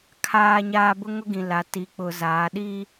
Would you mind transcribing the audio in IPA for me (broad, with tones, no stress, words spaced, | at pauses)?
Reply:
kʰaː˦ɲaː˦ bʊ˦ŋʊ˦ɡĩ˨la˨ ti˨k͡pʊ˨ zaː˨˦ɗi˦